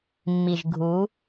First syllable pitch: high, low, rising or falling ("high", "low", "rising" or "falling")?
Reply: low